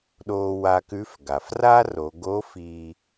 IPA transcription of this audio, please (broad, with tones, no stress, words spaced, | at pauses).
ɗoː˧wa˧kʉ˧˥f ɡa˩fra˥ ro˩˧ɡo˧˥ fiː˧